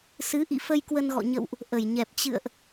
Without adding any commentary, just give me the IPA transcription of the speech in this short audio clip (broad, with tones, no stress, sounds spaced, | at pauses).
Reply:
s ɨ˨˦ ʔ ḭ˧˨ f ə˧ j k w ə˧ n ɣ ɔ̰˧˨ ɲ ə̰˧˨ w ʔ | ʔ ə˧˩ j ɲ ɛ˨˩ p̚ t͡ɕ ɨ̰˧˨ ə̯ ʔ